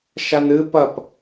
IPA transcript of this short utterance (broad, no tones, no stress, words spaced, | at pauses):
ʃanɨ pɐp